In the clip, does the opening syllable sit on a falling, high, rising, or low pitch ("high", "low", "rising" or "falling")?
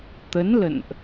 rising